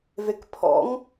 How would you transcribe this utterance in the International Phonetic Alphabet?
vekpʰɔ̰ŋ

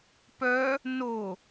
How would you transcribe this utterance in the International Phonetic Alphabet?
pœ | no

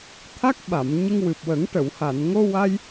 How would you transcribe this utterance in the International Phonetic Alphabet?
t̪ʰa˦˥k̚ɓa˨˩˨m ɲə˧ŋwɨ˨˩p̚wə˨˩˦ŋ ʈə˨˩˨wha˨˩˨n ŋo˧wa˧j

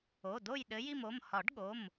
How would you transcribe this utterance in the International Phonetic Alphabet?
o˩˧˩ do˦˨jɗɘ˨˦ji˦˨mo˩˧˩m hɒ˨˩˦ɖɠo˩˧˩m

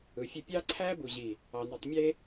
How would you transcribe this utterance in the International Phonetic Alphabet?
ɯ˨fʲø˦ pʲɑ˦ǀʰæ˦bu˨ ʑi˨ | ɑ˨ni˨tˤ mʲe˦

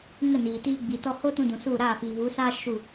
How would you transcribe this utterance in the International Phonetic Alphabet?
ŋə˦˨niː˨ tiː˧ɡ͡bi˨tɔ˧ ho˦tũ˧dũ˨ su˦˨ ɾaː˦˨fiː˨vu˨˦sa˦ ʃu˦˨

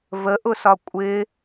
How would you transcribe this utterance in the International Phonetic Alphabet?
vəʔʊsɒ kʷʼɪ

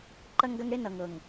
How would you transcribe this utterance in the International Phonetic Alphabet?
ǃɐ˦ŋɡɐ˦ŋɽe˦ nʌ˨ŋ ɤ˨ŋ

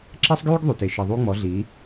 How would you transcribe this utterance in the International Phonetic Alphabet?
ǁɛ˦sˤɡjyː˦ɡðˤy˨te˨ ʃi˨ðˤuː˦ŋ͡mɔ˨˦ ɮiː˨˦

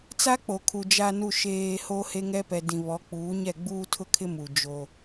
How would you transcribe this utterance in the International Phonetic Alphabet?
t͡sa˦k͡po˨kʰu˨ d͡ʒa˨nu˨ʃeː˨ ho˦he˦ŋɛ˦ pɛ˨dĩ˨ βɔ˨˦ k͡puː˨˦ɲɛ˦˨ɡ͡buː˦ tʰʊ˦kʰɪ˦ mu˨ d͡ʒo˦

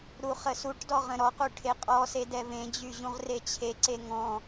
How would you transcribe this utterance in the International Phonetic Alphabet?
ɾuχəsuʈdɔ ʁə̃ɾɔqu ʈʰeqʼɔse dɛvẽd͡ʑy ʑũʁret͡ɕʰeǀe ŋɔ̃

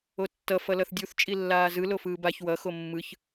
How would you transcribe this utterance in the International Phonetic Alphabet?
otːʌ fʌlʌθdʲuθ t͡ʃʼilːaːzɯ lofɯːbaç wʌ xomːɯç

